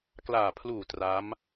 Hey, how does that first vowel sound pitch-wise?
low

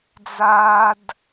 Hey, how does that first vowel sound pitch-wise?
high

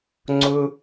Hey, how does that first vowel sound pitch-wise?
high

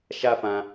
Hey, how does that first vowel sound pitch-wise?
high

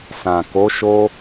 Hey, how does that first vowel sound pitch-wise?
low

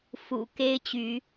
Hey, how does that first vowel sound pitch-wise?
low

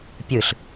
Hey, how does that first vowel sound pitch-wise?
falling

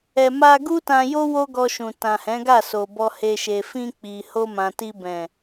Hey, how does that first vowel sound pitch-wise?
low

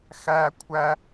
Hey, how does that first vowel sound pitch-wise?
high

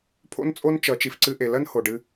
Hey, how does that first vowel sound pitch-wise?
high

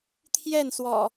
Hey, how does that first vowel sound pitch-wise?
falling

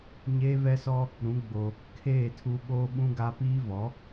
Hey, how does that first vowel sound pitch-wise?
high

